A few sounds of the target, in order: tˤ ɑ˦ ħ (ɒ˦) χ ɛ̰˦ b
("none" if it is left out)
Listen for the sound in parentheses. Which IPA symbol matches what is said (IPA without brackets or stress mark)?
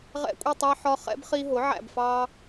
ɒ˦